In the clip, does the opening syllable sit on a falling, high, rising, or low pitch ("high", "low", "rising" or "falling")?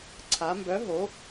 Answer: rising